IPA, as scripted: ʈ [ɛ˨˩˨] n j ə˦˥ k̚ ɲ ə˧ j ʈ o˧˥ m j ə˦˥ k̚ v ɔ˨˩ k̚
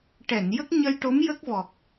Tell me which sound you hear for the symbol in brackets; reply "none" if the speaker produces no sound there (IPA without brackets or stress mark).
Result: ɛ˨˩˨